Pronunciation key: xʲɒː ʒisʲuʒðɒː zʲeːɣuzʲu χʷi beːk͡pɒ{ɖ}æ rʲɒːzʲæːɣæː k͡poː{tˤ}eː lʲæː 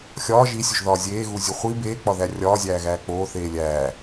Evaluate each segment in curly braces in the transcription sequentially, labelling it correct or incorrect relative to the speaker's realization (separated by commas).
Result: incorrect, incorrect